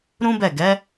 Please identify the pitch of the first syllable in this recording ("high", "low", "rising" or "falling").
high